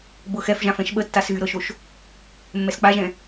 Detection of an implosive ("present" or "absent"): present